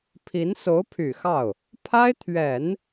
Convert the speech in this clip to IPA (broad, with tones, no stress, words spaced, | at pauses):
pʰi˧˥n so˧˥ʊ̯pʰy˨˩ xɑ˥˩ʊ̯ | pʰa˥ɪ̯t̪ʰɥɛ˨˩˦n